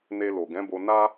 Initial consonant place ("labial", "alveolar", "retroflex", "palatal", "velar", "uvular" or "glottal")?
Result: alveolar